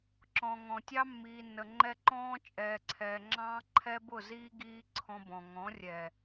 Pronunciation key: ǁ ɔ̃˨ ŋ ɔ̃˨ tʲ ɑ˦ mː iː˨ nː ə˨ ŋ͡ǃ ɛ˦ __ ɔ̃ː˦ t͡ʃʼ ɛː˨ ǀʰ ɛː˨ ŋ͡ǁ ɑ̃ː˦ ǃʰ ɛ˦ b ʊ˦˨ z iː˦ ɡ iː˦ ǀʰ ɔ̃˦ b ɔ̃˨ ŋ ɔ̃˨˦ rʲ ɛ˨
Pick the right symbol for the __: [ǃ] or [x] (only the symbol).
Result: ǃ